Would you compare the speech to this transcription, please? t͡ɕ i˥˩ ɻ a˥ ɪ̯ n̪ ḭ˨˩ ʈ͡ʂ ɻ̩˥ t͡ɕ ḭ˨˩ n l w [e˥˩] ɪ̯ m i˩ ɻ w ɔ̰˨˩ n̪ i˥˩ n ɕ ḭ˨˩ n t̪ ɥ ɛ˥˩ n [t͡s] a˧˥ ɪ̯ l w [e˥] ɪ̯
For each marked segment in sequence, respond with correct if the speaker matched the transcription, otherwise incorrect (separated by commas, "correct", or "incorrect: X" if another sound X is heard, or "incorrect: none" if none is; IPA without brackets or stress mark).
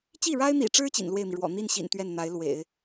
correct, incorrect: n̪, incorrect: ḛ˨˩˦